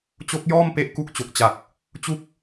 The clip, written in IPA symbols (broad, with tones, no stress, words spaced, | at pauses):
t͡ɕo˦˥k̚jɔː˥˩m pe˥˩ʔku˥˩k̚ t͡ɕo˨˩k̚t͡ɕa˨˩k̚ | t͡ɕu˥˩k̚